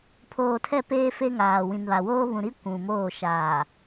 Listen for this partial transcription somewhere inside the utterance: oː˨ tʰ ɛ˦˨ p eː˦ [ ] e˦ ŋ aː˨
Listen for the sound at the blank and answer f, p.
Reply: f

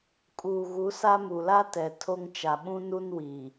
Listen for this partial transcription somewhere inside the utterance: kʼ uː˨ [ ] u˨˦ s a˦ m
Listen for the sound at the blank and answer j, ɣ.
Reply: ɣ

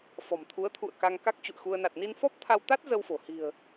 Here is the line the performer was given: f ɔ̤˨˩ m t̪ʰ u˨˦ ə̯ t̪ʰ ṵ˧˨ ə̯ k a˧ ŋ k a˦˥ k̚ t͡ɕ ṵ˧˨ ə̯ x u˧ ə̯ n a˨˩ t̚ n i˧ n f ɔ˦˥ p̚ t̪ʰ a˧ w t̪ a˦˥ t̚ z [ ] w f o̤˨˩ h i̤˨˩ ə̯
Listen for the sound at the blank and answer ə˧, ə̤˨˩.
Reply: ə˧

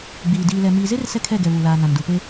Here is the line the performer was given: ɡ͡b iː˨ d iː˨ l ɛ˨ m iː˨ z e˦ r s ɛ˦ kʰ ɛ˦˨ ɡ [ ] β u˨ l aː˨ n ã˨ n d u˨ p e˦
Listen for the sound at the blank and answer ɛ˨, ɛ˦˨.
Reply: ɛ˨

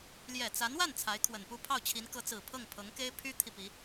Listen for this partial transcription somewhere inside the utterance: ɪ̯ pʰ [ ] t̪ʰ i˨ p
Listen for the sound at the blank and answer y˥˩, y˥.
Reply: y˥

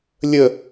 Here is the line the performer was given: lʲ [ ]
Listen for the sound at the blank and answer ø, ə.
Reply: ə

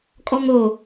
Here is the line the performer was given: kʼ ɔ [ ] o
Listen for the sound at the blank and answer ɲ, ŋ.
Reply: ŋ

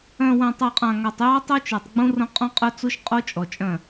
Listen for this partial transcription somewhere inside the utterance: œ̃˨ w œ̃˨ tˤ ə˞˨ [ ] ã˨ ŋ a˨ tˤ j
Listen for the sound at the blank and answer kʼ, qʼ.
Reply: qʼ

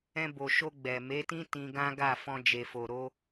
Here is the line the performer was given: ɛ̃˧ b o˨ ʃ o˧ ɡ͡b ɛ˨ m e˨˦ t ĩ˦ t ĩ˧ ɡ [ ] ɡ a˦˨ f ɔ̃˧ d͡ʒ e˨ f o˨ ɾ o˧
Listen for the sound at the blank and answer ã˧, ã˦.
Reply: ã˦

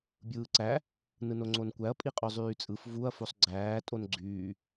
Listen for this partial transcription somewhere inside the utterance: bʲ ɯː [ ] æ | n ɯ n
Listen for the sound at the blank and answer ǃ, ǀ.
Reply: ǀ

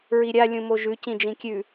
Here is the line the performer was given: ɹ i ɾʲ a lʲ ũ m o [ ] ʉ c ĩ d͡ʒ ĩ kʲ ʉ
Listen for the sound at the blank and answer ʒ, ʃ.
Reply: ʒ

